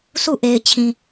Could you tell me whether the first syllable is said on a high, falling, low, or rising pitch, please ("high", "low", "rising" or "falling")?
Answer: falling